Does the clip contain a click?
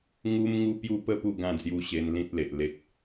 no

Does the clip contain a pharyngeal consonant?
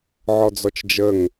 yes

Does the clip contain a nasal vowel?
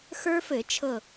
no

